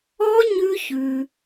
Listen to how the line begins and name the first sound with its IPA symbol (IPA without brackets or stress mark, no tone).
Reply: ɔ